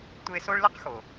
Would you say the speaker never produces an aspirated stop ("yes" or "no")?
yes